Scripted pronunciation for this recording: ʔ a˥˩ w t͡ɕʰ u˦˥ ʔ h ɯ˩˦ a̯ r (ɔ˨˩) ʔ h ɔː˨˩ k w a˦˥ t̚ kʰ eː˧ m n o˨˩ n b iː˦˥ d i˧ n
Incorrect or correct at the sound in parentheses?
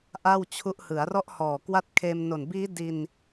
incorrect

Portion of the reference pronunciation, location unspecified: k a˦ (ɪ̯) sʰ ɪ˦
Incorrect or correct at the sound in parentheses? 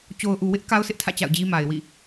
incorrect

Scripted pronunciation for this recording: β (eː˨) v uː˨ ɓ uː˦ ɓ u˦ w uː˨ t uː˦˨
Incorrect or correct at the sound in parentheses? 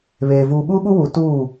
correct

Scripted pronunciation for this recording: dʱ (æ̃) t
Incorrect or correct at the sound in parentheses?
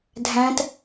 correct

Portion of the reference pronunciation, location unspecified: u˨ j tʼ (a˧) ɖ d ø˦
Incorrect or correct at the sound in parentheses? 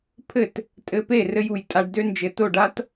correct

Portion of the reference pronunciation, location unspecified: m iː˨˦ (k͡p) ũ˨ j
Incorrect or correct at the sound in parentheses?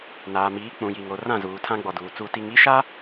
correct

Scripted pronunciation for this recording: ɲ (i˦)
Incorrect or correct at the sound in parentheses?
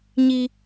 correct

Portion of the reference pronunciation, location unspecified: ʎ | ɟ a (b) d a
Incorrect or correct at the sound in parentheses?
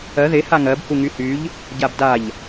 correct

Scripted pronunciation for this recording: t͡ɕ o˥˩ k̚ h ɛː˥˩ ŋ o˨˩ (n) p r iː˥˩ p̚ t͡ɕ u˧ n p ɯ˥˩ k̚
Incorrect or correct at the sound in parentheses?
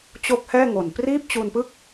correct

